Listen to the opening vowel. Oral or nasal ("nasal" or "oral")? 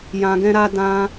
nasal